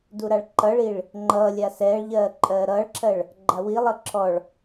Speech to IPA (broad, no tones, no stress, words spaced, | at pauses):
duɾaɭǃʌɭiɭ | ŋ͡ǃʌːlʲa sɛːɭʎɜː ǃʼɜːɾʌːɭǁʰɜɭ | ɡ͡ǃawilˠʌ ǁʰɔɭ